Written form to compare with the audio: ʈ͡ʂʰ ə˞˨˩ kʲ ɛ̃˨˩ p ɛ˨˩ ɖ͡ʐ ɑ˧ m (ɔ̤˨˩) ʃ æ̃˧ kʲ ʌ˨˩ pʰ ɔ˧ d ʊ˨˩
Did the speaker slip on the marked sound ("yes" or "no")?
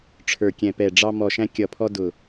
yes